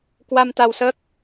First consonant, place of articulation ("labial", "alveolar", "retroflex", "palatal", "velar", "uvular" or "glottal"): velar